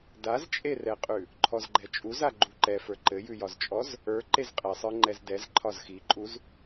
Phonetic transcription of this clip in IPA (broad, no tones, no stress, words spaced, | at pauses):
dazt͡ʃʼerɛqʼʉ | ǃʰɔzɡ͡ǃɛt͡ʃʼuza ɡ͡ǃuǃɛfə˞ ǃɘjʉjɒzt͡ʃʼɔz | ə˞ ǃezqʼɛsˤə˞ ŋ͡ǃɛzdɛz ǃʰɒzxiǃʼuz